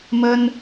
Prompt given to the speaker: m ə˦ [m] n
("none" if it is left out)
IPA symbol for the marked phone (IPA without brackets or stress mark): none